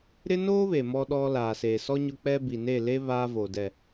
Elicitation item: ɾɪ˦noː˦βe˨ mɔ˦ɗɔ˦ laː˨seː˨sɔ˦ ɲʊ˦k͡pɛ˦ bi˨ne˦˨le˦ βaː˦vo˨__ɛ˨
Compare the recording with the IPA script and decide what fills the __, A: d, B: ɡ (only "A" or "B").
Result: A